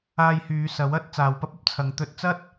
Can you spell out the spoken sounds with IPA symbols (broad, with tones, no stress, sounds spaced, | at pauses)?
aː˧ j h yː˨˧ s ɐ˨˥ w ɐ˨˥ t̚ t͡s aː˨ w p ɐ˥ p̚ ɐ˥ p̚ t͡sʰ ɐ˨˧ ŋ t̪ ɵ˧ t̚ t͡s ɐ˥ t̚